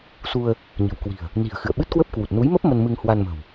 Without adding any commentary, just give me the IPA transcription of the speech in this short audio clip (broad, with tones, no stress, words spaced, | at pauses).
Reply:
su˧ə̯ | ɲə̤˨˩wkwi̤˨˩ə̯ | ni̤˨˩ə̯ xɨ̰˧˨ə̯ɓɨ˦˥t̚kwə˦˥p̚ kwu˨˩t̚ nu˨˦jmə˦˥p̚ mə˧nmɨ˧ŋ hwa˧nmə̤˨˩w